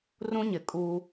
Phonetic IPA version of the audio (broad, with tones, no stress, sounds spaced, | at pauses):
r ũ˦ ɲ ɪ˨ kʼ uː˦